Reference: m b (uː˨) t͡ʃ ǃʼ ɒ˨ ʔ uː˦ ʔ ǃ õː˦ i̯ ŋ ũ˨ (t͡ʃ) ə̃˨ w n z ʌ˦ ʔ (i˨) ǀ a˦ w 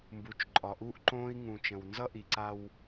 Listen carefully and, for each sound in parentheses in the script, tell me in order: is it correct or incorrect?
incorrect, correct, correct

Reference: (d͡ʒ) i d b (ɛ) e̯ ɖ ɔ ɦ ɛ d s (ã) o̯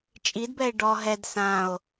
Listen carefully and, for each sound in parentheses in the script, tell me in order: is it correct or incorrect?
incorrect, correct, correct

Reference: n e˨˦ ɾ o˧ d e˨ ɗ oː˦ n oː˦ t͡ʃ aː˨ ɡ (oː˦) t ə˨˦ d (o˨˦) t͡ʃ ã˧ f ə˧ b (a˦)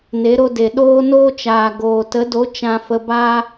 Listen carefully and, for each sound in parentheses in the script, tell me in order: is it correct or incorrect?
incorrect, correct, correct

